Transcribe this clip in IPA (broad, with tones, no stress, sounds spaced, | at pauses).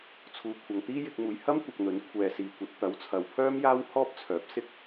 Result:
t͡sʰ uː˨ kʷʰ ɐ˨ ŋ t̪ iː˥ j ɪ˧ k̚ m uː˨ j h ɐ˥ m kʷ ɐ˨ k̚ n̪ ɵ˨˥ n kʷʰ ɛː˧ s iː˨˩ kʷ ɐ˧ t̚ t̪ ɐ˨˥ w t͡sʰ ɐ˨ w pʰ œː˥ m j aː˥ w h ɔː˥ p̚ t͡sʰ œː˨˥ p̚ s ɪ˥ k̚